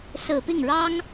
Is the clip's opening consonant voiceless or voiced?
voiceless